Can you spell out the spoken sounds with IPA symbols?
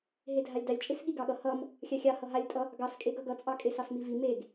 ɦ e dʱ a lʲ d ɑ lʲ t͡ʃʼ e s ɠ i ɡ ɑ ɠ ʌ h ʌ m | xʲ a xʲ ɑ h ʌ ɦ a lʲ tʼ ʌ | ɡ ɑ s kʼ e ɡ ʌ ɡ ʌ t͡sʼ ɑ kʼ e s ɑ s m i v i m e ɡ

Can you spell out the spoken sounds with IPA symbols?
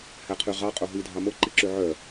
h æ qʰ ʉ ʁ ɑ qʼ o ɦ i dʱ ɑ m o ǃ i ǁ ʉ ʕ œ

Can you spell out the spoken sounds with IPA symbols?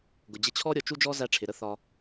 ɡ ʊ˩ d͡ʑ ɪ˦ t͡ɕʰ ɔ˥ ɾʲ ɔ˩ t͡ʃ u˥ d͡ʒ ɔ˥ z æ˦ ʈ͡ʂʰ ɪ˩ ɾ ə˥ θ ɒ˨

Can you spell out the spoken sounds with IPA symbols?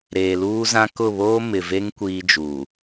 ɾ eː˨ l uː˦ z ã˦ k ʊ˦˨ β oː˦ m ɪ˨ v e˦ ŋ kʷ iː˦ d͡ʒ uː˨

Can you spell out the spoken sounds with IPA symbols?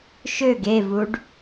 ʃ ø ɡ e v u ɖ

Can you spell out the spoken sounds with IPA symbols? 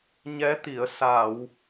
ɲ ɛ˧˥ t̪ i˨˩˨ ə̯ s a˨˩˨ w

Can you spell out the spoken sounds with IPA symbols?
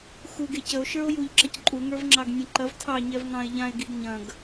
x u ɡ e c ə o̯ ʃ ə˞ o̯ j u ʎ ǁ ɐ c ǃʼ u ŋ ə˞ v ŋ͡ǁ ɑ ɡ nʲ ɛ̃ ǃ ɐ v tʰ ɑ ɲ ɛ v ŋ ɑ̃ e̯ ʎ ã e̯ ɡ i ɡ ɲ ɐ̃ ɡ

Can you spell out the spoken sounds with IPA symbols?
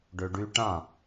ɖ ø ɖ y ʈ ã

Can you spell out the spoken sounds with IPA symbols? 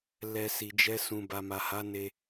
l ɛ˧ s i˨ d͡ʒ ɛ˧ s ũ˨ b a˨ m a˨ h a˨˦ n e˧

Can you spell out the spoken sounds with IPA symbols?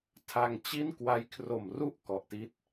tʰ a˧ ŋ t͡ɕ i˥˩ n k w a˦˥ j kʰ r o˨˩ m r u˥˩ ʔ k ɔ˨˩ ʔ t i˦˥ t̚

